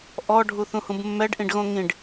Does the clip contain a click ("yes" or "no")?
no